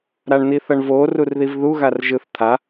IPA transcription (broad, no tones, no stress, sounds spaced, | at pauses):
ɾ a ɳ n̪ i θ ʌ ɳ v o r u r ð i v ð u ɣ a r ʒ ɯ θ t̪ʰ a